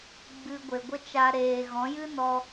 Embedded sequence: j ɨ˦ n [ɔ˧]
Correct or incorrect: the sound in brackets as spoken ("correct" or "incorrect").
correct